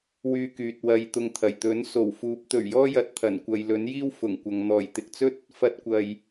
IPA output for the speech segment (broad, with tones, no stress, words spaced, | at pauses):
wyː˧kyː˨t̚ wɐ˧jt̪ʊ˧ŋt̪ʰɐ˨˩j t̪ɵ˨˥nso˨˩w fuː˨˥p̚t̪ɵ˨˩ɥjɔː˥ jɐ˨t̚t̪ʰɐ˨˩nkʷɐ˨j lɵ˨˥njiː˥w fʊ˨˩ŋkʷɐ˨ŋ n̪ɔː˨˩jt̪ɪ˨k̚t͡sɵ˥t̚ | fɐ˧t̚kʷɐ˨j